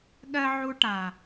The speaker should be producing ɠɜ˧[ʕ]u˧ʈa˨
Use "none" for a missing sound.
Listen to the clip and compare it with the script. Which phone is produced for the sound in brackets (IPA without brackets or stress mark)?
ʕ